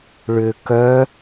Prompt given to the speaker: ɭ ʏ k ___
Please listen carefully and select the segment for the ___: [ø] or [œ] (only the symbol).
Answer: œ